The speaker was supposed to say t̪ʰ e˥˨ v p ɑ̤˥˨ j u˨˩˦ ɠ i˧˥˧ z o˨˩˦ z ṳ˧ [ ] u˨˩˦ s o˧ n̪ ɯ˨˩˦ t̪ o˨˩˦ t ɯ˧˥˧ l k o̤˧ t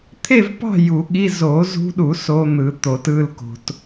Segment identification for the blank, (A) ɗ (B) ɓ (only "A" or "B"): A